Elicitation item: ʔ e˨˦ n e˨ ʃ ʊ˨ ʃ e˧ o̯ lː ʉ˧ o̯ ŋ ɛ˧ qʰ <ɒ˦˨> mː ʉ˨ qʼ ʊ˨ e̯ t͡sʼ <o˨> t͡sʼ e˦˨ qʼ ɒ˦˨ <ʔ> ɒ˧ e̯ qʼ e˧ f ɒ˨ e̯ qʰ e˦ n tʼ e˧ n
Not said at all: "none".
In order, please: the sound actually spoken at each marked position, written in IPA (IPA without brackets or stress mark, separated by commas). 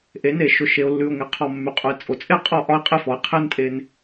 ɒ˦˨, o˨, ʔ